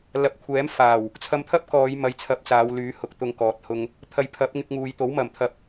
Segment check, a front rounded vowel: present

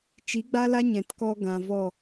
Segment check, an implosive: absent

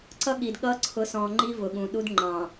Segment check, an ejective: absent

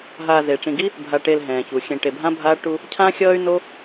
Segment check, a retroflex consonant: present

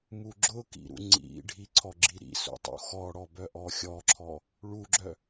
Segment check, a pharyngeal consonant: absent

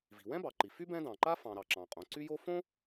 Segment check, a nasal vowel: present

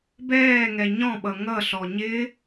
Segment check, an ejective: absent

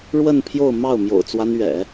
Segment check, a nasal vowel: absent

